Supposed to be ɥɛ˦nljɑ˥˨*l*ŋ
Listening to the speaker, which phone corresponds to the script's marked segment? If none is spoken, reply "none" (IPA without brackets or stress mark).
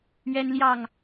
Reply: none